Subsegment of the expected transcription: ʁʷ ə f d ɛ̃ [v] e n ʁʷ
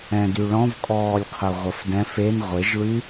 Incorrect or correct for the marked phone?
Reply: incorrect: f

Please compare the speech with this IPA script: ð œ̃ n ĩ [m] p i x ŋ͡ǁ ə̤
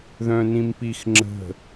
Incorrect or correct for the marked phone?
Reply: correct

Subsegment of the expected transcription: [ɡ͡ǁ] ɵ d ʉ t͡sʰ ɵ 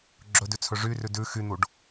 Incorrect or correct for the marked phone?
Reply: correct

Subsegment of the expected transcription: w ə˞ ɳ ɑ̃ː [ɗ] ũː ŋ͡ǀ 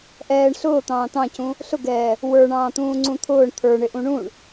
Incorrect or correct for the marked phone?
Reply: incorrect: t̪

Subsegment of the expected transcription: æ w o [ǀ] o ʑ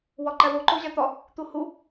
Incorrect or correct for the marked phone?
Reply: incorrect: ǃ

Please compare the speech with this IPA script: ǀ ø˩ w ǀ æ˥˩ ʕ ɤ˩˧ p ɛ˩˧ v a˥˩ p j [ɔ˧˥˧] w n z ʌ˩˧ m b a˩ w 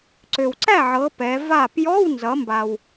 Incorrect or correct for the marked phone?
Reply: correct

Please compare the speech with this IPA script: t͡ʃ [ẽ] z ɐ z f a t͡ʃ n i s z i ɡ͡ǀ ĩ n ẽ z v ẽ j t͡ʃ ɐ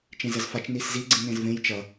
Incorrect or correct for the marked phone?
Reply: correct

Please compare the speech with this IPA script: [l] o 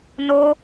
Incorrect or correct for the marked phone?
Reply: incorrect: n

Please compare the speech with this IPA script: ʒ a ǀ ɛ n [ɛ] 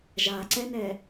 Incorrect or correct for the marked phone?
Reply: correct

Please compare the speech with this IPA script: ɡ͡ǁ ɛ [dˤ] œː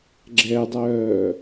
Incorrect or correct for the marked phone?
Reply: correct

